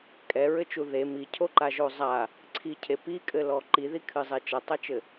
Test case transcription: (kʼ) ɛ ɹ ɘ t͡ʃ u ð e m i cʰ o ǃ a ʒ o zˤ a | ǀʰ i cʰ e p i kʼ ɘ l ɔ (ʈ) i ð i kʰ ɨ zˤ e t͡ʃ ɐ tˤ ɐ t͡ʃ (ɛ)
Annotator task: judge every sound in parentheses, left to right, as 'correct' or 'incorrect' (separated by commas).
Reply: correct, incorrect, incorrect